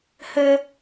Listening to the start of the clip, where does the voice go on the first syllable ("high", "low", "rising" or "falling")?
high